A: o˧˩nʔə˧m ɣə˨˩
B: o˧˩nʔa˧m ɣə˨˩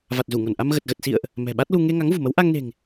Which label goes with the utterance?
B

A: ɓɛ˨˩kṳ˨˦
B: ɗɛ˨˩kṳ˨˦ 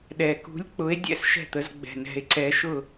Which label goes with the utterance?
B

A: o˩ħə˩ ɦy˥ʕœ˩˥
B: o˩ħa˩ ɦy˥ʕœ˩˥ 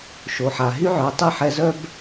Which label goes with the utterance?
B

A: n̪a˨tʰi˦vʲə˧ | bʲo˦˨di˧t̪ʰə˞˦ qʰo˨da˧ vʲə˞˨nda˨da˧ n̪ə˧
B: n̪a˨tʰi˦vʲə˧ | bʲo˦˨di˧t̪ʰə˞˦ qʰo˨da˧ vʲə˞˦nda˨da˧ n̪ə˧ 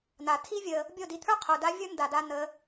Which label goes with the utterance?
B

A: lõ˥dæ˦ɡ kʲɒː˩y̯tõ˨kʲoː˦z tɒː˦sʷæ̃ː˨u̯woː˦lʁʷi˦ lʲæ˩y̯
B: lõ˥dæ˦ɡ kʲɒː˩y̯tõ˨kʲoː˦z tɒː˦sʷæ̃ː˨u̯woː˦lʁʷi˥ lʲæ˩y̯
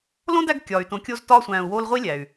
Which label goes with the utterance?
B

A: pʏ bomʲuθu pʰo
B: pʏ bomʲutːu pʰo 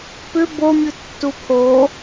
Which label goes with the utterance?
B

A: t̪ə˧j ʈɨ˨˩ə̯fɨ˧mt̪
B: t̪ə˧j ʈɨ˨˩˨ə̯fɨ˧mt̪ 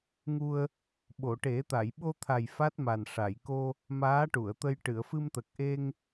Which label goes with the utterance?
B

